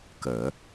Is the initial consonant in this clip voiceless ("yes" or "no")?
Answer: yes